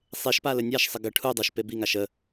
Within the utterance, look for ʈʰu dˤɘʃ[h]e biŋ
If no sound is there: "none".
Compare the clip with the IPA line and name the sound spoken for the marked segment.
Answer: p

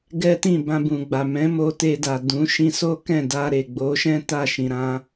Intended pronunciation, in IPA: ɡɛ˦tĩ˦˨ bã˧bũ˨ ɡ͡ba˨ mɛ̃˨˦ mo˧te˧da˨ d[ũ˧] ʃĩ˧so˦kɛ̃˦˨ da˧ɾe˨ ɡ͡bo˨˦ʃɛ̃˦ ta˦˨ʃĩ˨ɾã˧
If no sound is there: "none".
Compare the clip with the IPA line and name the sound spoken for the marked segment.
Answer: ũ˨˦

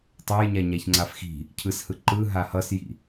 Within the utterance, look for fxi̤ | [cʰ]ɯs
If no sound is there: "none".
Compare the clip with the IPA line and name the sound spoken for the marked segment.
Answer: cʰ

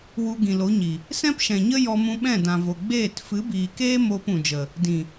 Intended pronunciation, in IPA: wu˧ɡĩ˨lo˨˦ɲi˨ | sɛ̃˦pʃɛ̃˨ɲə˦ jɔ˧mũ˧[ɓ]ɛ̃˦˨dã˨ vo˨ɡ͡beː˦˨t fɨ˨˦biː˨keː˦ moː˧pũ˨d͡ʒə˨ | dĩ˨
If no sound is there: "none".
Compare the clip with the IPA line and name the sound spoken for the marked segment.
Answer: ɓ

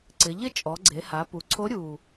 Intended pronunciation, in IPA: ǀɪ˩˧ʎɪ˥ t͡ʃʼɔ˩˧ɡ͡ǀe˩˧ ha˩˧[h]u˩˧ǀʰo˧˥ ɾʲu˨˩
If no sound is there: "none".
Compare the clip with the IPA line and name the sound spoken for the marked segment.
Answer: p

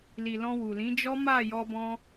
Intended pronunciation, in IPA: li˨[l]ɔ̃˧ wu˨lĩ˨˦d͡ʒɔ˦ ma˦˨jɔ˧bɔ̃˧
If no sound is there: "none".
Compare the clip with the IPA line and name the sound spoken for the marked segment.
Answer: l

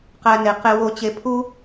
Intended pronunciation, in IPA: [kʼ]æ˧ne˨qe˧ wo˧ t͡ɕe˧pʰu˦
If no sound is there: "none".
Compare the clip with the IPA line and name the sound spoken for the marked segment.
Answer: q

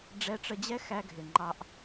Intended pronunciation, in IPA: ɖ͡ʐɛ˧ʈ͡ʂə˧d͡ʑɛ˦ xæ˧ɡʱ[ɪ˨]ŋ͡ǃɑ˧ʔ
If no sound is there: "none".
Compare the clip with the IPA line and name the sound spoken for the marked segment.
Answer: ɪ˨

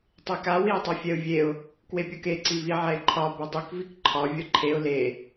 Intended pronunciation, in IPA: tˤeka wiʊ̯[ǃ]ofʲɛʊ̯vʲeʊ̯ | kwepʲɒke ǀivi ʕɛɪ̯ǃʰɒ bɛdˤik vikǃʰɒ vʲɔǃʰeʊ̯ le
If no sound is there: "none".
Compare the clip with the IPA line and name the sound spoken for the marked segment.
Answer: tˤ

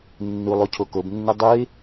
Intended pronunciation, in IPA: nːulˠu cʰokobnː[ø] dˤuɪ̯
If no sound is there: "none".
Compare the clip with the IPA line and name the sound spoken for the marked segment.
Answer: ɛ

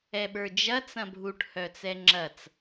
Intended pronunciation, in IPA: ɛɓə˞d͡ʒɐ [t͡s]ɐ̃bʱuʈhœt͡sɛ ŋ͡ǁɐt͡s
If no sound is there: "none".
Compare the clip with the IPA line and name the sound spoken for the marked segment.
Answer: t͡s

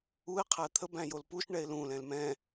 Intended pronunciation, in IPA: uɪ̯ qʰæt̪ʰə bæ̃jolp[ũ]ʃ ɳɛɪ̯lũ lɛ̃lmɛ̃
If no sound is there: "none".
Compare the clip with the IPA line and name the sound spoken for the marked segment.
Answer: u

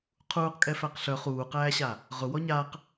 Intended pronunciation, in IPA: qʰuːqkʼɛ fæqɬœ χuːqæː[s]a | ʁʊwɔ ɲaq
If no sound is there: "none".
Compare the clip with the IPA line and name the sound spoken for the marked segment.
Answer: ɕ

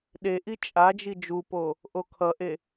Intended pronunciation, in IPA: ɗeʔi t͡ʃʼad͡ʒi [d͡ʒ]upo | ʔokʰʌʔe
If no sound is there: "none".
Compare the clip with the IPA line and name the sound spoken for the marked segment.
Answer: d͡ʒ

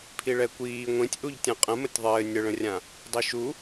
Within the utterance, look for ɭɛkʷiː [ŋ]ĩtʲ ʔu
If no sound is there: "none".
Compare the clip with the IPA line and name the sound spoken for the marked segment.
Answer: ŋʷ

